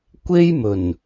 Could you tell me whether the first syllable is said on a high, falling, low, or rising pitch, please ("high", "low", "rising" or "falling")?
high